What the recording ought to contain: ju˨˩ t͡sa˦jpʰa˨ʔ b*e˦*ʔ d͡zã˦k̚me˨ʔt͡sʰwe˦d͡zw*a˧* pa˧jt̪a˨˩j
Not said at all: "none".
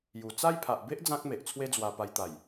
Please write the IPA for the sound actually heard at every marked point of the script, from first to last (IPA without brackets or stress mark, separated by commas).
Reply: e˦, a˧